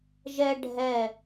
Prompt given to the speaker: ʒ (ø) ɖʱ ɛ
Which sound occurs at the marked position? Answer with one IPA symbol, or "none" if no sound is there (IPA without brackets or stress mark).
ɛ